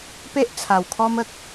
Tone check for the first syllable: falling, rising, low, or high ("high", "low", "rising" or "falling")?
high